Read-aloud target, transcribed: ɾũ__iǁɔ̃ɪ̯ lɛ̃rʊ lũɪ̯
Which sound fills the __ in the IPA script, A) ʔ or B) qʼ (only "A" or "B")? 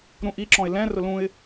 A